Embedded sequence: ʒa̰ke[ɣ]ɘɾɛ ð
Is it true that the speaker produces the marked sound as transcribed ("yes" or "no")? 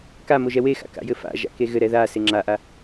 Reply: yes